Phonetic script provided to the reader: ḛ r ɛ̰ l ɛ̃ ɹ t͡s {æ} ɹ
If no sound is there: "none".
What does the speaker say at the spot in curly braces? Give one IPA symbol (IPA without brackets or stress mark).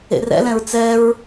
ɛ